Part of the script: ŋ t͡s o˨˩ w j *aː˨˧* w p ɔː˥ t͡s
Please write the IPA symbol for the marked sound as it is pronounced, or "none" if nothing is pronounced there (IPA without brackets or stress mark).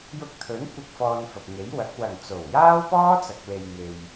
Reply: aː˥